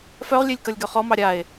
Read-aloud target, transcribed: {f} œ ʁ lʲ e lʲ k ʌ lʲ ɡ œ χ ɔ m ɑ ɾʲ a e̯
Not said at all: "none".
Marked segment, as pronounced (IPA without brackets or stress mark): f